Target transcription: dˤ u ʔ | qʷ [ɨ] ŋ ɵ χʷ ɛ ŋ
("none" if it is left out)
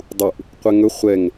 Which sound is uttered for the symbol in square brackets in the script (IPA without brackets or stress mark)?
ɛ